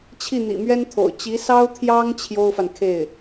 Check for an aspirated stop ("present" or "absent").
present